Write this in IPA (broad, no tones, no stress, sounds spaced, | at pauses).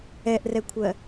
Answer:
ɛ ʔ r ɛ kʷʰ ɜ